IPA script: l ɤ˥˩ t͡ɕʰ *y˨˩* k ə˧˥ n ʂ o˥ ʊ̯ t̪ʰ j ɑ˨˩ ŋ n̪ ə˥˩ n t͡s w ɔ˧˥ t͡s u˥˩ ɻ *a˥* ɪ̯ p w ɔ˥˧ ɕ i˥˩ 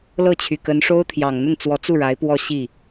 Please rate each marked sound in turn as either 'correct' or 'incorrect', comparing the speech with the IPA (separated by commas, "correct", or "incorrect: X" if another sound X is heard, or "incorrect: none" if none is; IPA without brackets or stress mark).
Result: correct, incorrect: a˧˥